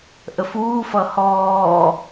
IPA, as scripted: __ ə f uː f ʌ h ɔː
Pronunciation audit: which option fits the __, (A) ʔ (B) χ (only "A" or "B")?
A